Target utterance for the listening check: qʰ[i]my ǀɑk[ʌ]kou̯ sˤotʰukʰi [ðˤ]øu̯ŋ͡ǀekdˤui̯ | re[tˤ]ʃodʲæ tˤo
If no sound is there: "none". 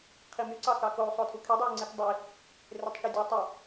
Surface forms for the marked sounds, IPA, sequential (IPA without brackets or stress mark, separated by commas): i, ɑ, dˤ, tˤ